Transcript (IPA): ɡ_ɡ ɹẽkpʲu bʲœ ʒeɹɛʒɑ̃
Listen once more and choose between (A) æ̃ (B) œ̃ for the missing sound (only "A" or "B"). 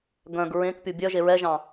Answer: B